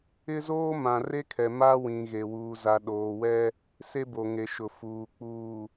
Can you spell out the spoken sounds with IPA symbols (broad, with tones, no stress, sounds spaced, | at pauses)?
ɪ˦ z oː˦ m ã˨ r e˦ kʰ ɛ˨ m a˦ w ĩ˨ ɣ e˨ w uː˨ z a˨ ɗ oː˨ w ɛ˦ | s e˦ b o˨ ŋ e˨ ʃ ʊ˨ f uː˨ k͡p uː˨